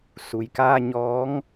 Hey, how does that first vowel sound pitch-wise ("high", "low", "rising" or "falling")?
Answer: low